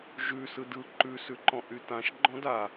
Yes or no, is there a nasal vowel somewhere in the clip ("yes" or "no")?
yes